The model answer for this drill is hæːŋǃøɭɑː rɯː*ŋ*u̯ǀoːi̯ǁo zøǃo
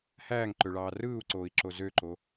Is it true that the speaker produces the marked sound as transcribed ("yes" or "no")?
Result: no